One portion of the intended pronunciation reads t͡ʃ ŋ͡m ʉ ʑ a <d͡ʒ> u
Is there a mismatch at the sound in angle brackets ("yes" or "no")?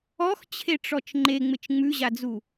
yes